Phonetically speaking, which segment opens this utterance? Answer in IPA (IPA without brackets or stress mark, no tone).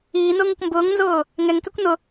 iː